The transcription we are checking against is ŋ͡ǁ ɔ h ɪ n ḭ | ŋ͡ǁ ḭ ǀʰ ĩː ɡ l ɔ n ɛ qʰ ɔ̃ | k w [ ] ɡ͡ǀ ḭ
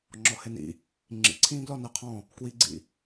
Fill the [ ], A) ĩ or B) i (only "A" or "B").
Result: B